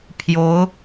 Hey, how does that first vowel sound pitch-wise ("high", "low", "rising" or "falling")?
rising